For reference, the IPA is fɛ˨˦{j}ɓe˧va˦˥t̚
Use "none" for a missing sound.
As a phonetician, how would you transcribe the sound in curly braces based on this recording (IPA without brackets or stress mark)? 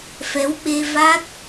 w